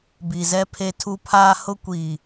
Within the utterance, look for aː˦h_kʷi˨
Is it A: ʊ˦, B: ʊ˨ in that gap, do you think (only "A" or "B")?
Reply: A